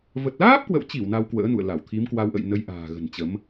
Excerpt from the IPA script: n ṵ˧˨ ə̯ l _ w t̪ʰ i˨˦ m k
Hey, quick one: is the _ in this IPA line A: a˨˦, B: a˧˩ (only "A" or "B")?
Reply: B